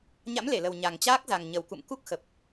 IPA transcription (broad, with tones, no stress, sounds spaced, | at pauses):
ɲ a̰˧˥ m l e˧˩ l ə˨˩ w ɲ a˨˩ ŋ t͡ɕ aː˦˥ k̚ z a˨˩ ŋ ɲ ə˨˩ w k ṵ˧˨ m k u˦˥ k̚ x ə˨˩ p̚